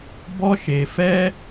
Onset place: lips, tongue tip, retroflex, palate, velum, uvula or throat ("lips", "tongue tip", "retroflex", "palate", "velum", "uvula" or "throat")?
lips